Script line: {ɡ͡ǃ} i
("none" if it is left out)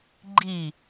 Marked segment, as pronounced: ɡ͡ǃ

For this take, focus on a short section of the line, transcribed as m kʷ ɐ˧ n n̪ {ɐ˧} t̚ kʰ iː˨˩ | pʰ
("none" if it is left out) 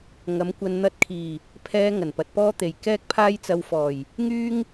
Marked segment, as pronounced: ɐ˧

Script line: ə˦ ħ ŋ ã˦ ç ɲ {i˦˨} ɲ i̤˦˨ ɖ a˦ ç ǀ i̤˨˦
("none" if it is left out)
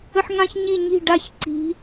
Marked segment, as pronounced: i˦˨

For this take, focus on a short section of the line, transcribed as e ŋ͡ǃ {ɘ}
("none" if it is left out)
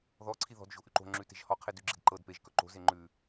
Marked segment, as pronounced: ʉ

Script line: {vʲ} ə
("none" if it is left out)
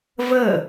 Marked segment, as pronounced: v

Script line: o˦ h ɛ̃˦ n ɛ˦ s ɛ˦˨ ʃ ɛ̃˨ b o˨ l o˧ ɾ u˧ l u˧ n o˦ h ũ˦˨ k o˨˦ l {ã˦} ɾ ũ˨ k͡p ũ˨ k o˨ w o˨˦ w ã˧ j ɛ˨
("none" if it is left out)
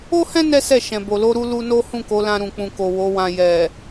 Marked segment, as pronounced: ã˧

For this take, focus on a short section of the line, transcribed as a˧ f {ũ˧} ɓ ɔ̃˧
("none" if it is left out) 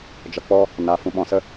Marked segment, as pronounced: ũ˧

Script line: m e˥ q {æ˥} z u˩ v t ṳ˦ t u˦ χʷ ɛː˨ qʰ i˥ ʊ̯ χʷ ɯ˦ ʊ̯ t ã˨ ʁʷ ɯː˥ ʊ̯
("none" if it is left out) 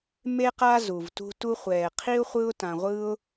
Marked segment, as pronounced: a˥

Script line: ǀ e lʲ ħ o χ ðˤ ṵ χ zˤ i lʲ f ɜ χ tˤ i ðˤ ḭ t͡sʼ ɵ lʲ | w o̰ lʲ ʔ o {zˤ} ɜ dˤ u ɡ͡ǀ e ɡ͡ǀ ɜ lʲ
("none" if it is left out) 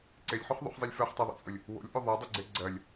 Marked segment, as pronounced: ðˤ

